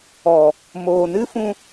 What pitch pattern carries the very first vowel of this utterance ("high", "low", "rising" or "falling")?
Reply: low